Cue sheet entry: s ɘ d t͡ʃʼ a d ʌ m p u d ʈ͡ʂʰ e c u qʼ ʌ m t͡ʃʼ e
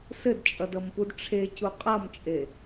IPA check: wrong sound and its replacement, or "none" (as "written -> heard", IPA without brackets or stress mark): a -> ʌ